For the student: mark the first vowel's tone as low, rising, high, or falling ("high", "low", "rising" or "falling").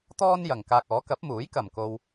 high